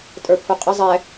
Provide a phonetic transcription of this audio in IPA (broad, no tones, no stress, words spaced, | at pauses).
tʼə˞pʰuqʼə zˤɛ